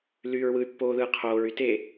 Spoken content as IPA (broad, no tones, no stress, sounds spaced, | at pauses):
l yː ɹ w ɯ y̯ pː oː ð ɯː qʰ oː ɹ y t e